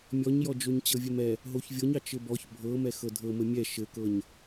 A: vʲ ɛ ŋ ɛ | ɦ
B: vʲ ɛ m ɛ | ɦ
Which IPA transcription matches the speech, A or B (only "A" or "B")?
B